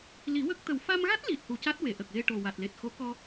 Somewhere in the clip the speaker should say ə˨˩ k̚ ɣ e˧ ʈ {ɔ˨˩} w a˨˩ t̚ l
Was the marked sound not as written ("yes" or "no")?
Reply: yes